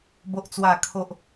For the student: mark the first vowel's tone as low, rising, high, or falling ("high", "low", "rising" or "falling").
high